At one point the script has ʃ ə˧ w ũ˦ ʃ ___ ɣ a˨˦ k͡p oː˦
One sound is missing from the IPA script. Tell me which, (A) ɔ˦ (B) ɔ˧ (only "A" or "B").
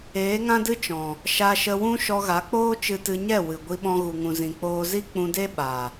B